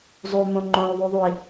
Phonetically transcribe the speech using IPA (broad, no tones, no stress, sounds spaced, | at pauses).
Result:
zˤ ʉ m õ ŋ͡ǃ õ u̯ ðˤ u ðˤ u i̯